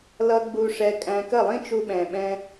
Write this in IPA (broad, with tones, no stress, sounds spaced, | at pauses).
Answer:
l ʌ˧ ɡ͡b u˧ ʂ ɛ˧ kʼ æ̃˧ k ə˦˨ lˠ ĩ˦ t͡ʃ u˧ ɓ ɛ̃˨ ɓ ɛ̃˧